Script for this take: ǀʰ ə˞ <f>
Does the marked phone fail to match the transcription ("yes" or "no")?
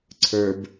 yes